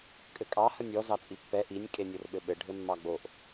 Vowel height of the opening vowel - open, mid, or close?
mid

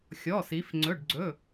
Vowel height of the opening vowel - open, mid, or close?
mid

